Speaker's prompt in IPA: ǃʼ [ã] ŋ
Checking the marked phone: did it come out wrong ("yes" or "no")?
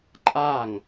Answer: yes